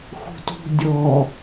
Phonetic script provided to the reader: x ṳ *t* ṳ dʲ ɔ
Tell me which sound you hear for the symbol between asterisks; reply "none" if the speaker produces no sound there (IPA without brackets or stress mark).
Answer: t